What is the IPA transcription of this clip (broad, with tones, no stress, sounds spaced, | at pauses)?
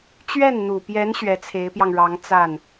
t͡ɕ ɥ ɛ˥˩ n n̪ u˨˩ p j ɛ˧˥ n ɕ ɥ ɛ˧˥ t͡sʰ e˧˥ ɪ̯ p j ɑ˧ ŋ ɻ ɑ˧˥ ŋ t͡s a˥˩ n